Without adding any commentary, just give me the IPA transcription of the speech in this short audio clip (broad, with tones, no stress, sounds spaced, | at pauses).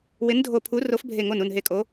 w ɪ˨˥ n dʱ o˧˩ pʰ u˨˥ r o˨˥ f bʱ e˧˩ ŋ o˧˩ n u˧˩ n ɦ e˧˩ kʼ o˨˥